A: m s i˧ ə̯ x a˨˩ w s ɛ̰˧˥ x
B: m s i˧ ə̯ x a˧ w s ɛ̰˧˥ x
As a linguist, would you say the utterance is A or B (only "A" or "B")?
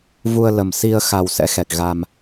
A